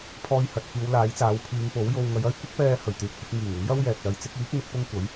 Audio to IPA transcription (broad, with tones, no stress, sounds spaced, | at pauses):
pʰ ɔː˧ j h ɐ˨ t̚ f iː˨˧ w l aː˨˥ j t͡s aː˨˥ w pʰ iː˨˧ ŋ p o˨˥ w j o˧ w ŋ ɐ˨˧ j ɐ˥ j kʷ ɪ˥ k̚ p ɛː˧ h ɵ˨˩ ɥ t̪ yː˧ k̚ f ɪ˥ k̚ ŋ iː˨˩ ŋ ʊ˨˥ ŋ j ɐ˥ w j ɛː˨ k̚ l ɐ˨˧ j t͡s ɪ˨˥ k̚ iː˨˥ k̚ n̪ ɪ˨˥ k̚ p ʊ˥ ŋ kʷ ɐ˨˥ j